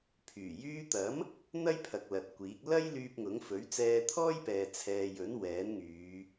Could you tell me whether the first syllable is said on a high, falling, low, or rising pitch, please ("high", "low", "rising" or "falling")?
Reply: low